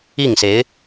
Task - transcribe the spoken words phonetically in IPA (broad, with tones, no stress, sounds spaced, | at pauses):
i˥˩ ŋ s e˧˥ ɪ̯